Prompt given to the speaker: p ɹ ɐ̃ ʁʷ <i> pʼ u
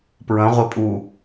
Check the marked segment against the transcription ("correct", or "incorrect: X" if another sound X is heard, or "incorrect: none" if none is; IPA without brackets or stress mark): incorrect: e